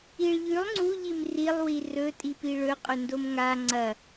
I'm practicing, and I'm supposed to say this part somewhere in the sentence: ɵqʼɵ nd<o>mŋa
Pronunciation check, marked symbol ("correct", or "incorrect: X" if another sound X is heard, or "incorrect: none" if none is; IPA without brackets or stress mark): correct